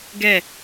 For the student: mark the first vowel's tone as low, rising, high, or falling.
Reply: falling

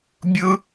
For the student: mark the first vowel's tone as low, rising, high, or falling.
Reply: high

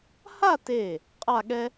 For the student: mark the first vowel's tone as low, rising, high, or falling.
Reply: falling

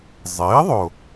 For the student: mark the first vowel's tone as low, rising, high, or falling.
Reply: rising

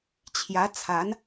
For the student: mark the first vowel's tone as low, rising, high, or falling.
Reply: rising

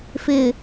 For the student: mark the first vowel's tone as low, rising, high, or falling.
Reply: low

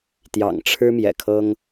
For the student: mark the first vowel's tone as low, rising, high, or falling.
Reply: low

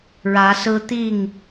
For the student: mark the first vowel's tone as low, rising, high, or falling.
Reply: rising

